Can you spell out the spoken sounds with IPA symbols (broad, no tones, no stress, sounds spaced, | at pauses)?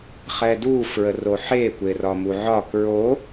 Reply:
χ ɛ d u f ɹ ə r o ħ e kʷ e r ɒ m u ʕ ɒ k ɹ o